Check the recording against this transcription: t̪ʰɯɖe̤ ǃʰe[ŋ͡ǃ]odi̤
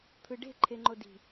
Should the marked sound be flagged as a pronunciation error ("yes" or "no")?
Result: no